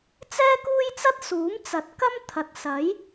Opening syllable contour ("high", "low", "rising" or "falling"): high